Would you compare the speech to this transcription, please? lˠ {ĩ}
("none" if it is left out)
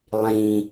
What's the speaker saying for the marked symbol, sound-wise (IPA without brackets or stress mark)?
ĩ